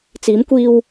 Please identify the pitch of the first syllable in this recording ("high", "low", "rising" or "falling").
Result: rising